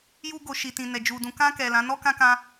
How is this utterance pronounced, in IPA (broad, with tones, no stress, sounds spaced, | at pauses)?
j u˧ ɡ o˨ ʃ i˨ t ĩ˨ n ɛ˨ d͡ʒ u˨ d ũ˨ k ã˧ k ɛ˨ l ã˨˦ n ɔ˦ k ã˧ k ã˧